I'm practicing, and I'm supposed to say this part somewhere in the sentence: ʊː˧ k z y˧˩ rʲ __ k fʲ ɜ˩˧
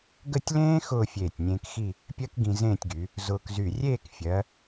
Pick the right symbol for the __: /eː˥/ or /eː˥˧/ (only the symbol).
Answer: eː˥˧